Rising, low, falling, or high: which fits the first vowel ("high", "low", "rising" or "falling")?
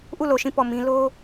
falling